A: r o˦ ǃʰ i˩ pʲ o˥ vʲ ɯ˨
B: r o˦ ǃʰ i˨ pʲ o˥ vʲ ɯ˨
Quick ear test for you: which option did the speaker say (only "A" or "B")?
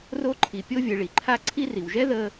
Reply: B